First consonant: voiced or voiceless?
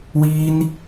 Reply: voiced